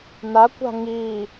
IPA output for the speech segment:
n a kʷ a̤ ŋ i

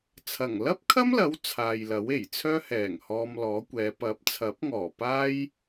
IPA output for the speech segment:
t͡sʰ ɐ˨˩ ŋ l ɐ˥ p̚ kʰ ɐ˥ m l ɐ˨˥ w t͡sʰ aː˨ j l ɐ˨˥ w e˨˩ j t͡sʰ œː˥ h ɛː˨˩ ŋ h ɔː˧ m l ɔː˨˥ kʷ ɛː˨˧ p ɐ˨˥ p̚ t͡sʰ ɐ˨˥ p̚ ŋ ɔː˨˩ p aː˥ j

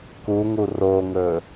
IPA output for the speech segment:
k u ŋ u r o ŋ ɵ

